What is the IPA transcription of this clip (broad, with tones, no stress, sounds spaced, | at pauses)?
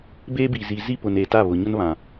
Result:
b e˦ b i˨ z i˨ z i˦ p ʊ˨ n e˨ t a˦˨ β ʊ˨ ɲ ʊ˦ n β ã˨